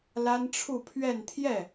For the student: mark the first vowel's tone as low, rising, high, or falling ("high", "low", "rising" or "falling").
high